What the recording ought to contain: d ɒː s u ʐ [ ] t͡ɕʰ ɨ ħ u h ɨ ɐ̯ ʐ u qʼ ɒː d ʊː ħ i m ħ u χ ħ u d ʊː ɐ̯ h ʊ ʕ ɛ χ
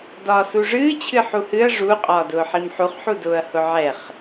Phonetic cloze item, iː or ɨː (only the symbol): ɨː